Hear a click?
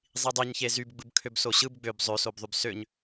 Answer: no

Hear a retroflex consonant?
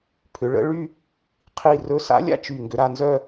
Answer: yes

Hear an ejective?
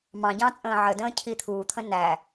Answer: yes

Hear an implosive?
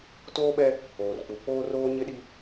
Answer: yes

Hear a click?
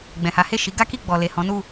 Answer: no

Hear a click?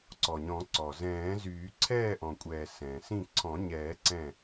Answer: yes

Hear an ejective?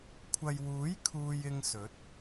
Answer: no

